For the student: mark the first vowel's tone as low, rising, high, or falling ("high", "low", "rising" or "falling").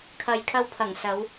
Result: low